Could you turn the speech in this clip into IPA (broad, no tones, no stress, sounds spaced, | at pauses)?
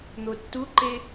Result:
n̪ o tː u ǃ e